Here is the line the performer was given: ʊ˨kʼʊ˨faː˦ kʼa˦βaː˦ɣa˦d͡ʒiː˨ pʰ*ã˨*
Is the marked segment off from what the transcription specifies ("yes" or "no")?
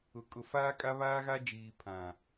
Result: no